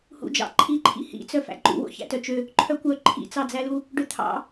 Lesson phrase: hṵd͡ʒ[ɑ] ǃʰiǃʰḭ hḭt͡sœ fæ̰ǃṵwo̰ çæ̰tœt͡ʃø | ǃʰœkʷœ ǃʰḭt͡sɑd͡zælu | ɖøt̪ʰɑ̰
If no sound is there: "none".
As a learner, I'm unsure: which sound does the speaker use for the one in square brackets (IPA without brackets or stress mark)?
ɑ̰